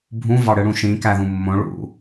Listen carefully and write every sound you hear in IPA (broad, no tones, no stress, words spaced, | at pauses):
bʱũ vɑɽɯɽũʃĩ kæðũmːõ ɭṵ